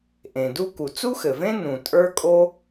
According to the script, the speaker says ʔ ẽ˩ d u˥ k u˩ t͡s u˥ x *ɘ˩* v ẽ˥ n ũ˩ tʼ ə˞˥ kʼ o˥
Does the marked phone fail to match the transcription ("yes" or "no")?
no